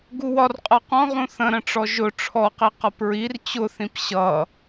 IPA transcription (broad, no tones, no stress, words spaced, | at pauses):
ɡuwɒrqʼʌ qɔ̃ʁũ θə̃ɾə̃ʈ͡ʂɔ ʒʊ ʈ͡ʂʰɔqi qʌpɹir t͡ɕʊθĩp ɕʌ